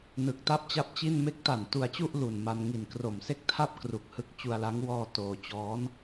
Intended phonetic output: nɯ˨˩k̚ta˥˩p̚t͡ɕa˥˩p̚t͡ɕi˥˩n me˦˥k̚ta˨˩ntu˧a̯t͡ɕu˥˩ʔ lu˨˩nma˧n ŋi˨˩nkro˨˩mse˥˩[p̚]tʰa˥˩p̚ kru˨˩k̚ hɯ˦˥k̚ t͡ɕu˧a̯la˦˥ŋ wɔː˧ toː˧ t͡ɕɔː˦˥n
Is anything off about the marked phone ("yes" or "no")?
yes